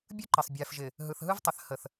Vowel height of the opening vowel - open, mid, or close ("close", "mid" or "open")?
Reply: close